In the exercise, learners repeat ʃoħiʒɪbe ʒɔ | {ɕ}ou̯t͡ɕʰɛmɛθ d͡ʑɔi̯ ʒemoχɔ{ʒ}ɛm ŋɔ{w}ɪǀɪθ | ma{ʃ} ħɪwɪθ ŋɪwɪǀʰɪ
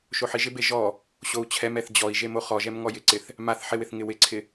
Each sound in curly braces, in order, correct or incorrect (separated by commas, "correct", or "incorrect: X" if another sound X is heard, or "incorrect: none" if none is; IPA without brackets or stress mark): correct, correct, incorrect: j, incorrect: θ